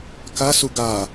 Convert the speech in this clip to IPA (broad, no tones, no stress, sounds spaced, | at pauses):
k a s u ɡ a